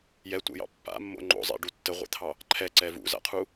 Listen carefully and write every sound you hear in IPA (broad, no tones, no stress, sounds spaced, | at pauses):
j ɛ tʷ ɛ̰ j ɑ̰ pː a̰ mː o̰ ŋ͡ǃ o̰ zˤ ɛ̰ ɖ u tː ə ʁʷ ɛ̰ t̪ʰ ɑ | ǃʰ ɛ ǀ ɛ v ṵ z a̰ qʰ u